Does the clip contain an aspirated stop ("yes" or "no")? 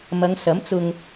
no